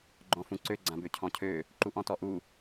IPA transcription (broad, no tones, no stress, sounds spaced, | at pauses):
ɡ͡ǃ ɔ̃ f ũ ǀ ø ɡ͡ǀ ã b ø cʰ ɔ̃ cʰ ø | ǃ u ʔ ɔ̃ t ɔ ʔ u